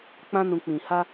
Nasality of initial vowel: nasal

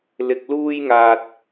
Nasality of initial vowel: oral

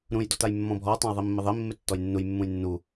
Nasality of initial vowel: nasal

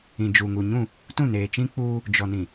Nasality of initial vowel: nasal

